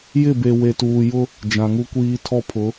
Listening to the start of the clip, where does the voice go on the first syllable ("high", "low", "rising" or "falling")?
falling